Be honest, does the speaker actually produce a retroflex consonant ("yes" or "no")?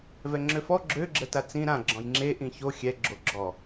no